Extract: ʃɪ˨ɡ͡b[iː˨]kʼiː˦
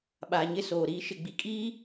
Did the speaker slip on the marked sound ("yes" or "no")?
yes